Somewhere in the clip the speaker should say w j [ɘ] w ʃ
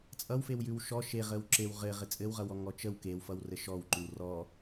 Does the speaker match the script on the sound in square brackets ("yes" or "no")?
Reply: no